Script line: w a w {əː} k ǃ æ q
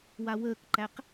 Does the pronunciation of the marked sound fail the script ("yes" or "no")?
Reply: no